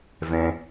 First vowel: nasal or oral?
nasal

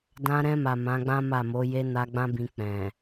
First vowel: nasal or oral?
nasal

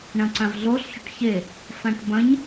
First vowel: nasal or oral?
nasal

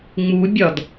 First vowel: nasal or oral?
oral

